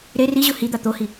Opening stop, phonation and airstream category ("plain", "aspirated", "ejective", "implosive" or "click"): plain